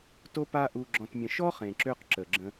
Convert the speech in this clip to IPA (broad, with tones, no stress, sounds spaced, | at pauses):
t o˦ p a˦ ʔ u˧ ɡ͡ǁ ɔ̃˧ t mʲ ə̃˧ ʃ ɔ˦ χ ẽ˨ ǁ ø˧ q ǁ ə˨ ɡ͡ǁ ə̃˧